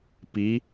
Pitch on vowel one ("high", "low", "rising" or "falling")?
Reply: rising